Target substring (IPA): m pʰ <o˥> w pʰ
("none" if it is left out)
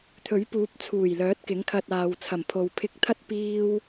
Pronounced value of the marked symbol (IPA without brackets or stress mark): o˨